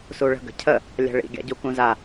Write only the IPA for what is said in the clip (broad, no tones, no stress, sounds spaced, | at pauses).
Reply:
s u ɭ ə̤ ɡ ə̤ cʰ ə | lʲ a̤ ɭ ḭ ɡʲ a̰ ɟ u k ũ z a